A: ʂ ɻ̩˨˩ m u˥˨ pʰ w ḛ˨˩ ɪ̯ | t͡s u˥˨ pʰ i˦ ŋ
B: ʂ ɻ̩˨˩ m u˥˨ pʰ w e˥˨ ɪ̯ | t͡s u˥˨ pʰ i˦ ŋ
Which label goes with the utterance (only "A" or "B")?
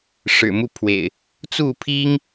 A